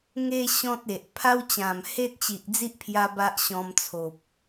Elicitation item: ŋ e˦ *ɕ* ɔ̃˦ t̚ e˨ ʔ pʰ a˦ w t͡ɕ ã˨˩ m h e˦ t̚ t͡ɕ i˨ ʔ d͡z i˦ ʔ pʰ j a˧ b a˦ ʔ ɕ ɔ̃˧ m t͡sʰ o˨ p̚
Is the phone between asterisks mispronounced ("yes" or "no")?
no